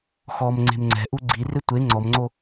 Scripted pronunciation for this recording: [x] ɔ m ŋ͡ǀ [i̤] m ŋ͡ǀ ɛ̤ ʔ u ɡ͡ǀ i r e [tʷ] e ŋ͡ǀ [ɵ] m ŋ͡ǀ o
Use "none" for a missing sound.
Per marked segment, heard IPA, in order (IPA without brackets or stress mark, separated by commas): x, e̤, tʷ, ɔ